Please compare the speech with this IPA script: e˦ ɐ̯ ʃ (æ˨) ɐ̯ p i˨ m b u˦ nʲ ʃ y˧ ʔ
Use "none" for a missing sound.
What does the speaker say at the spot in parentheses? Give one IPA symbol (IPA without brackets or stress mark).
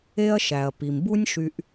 æ˨